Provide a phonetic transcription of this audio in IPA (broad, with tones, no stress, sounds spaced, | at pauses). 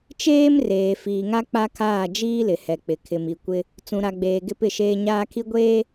t͡ʃ eː˦ m r eː˨ f iː˨ ŋ a˦ k͡p a˦ kʰ aː˦˨ d͡ʒ iː˦ l ɪ˨ h ɛ˨ k͡p ɪ˨ kʰ ɪ˨ m i˨ kʷ ɪ˦ | t͡s ũ˨ ɾ a˨ ɡ͡b eː˨ ɡ ɪ˦ p ɪ˦˨ ʃ eː˦ ɲ aː˦ kʰ i˦ ɡʷ eː˦